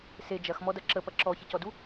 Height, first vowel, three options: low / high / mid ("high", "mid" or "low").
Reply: mid